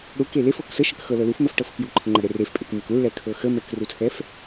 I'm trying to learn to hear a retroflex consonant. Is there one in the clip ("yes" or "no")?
yes